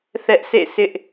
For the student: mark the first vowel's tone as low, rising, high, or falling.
high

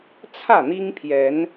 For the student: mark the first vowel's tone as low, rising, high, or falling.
falling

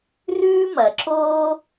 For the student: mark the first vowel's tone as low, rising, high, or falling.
high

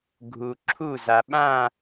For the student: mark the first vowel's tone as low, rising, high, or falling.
low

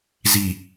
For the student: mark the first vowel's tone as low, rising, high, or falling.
low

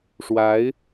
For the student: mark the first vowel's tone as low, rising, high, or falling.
rising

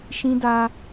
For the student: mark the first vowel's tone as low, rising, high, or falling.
high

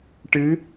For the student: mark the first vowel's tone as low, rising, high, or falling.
rising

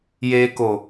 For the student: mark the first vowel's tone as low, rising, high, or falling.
low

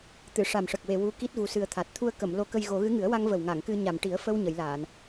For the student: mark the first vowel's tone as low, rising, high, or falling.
low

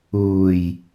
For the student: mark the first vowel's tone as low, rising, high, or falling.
low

